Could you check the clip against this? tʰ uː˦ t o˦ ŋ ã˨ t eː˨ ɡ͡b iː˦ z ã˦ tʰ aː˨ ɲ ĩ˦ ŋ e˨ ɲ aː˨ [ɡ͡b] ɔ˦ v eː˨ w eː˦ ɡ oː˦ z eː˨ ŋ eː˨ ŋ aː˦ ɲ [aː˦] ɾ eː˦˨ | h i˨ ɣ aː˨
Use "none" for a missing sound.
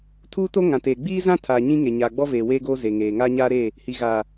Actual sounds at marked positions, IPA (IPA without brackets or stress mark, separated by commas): ɡ͡b, aː˦